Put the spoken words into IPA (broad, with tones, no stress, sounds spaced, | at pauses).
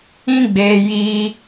ĩ˦ ɡ͡b eː˧ j iː˧